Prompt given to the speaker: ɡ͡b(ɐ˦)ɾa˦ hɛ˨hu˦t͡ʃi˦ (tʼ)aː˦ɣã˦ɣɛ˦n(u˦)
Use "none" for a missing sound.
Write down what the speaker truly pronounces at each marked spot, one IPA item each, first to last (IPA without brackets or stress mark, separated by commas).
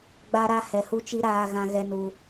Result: a˦, ɾ, u˦